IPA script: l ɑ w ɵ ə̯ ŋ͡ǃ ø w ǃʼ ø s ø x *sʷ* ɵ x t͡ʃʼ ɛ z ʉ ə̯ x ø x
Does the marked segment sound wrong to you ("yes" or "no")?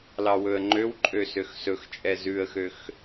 yes